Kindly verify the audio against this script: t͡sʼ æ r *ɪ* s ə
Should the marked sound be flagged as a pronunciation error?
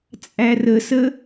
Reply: yes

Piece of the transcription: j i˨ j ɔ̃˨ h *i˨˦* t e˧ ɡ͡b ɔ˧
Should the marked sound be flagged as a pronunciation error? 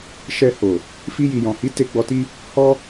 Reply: no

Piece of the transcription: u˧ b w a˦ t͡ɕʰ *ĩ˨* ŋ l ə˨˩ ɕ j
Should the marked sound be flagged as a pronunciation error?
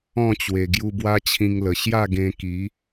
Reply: yes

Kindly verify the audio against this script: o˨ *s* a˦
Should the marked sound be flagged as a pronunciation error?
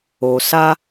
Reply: no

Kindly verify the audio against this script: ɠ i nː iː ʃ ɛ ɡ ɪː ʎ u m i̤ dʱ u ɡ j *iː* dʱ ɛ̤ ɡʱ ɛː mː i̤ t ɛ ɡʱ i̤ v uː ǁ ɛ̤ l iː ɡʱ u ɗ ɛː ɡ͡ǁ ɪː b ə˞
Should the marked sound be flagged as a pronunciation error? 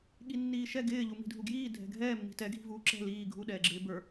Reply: no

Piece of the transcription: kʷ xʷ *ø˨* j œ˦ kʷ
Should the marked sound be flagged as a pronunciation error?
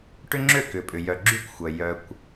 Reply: yes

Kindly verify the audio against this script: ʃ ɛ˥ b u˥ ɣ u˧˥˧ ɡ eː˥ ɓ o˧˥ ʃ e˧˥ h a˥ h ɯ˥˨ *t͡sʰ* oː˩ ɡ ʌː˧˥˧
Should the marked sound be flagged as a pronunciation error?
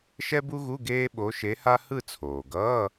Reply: no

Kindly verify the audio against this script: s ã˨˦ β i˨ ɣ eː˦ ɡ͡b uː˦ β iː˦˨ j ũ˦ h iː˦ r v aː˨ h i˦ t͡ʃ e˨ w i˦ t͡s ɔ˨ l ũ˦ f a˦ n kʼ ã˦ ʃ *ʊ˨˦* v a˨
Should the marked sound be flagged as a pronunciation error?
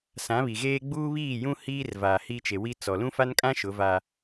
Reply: no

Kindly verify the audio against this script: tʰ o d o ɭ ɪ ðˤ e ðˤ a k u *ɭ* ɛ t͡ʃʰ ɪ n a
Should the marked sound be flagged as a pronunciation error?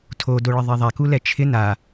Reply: yes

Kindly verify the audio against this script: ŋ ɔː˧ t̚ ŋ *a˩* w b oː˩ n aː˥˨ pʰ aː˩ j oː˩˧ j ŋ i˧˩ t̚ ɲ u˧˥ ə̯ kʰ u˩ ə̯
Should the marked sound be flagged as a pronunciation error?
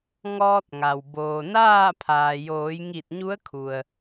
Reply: no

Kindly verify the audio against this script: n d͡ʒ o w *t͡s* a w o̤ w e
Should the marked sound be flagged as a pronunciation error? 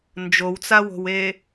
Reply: no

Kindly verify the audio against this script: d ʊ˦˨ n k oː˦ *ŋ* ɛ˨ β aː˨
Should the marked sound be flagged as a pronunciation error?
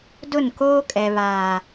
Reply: yes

